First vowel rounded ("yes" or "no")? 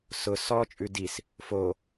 yes